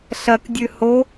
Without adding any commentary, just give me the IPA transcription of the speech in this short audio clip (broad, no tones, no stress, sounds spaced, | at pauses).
ɬ ɐ k dʲ ʉ h o